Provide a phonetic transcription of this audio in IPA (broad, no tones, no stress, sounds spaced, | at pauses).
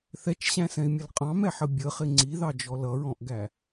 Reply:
θ ɛ t͡ʃ ɕ æ̃ s ɛ̃ i̯ mʲ ə l qʼ ɑ̃ m ɛ ħ ə bʲ ə χ ɪ ŋ͡ǀ i ð ɑ d͡ʒ ɔ l ʌ ɹ ɔ̃ ʔ ɡ æ